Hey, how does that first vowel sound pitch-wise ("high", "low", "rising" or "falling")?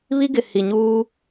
high